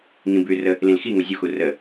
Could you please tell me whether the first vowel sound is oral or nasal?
nasal